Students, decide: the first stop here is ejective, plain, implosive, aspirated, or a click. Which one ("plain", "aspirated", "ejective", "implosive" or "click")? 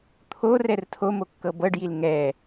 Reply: aspirated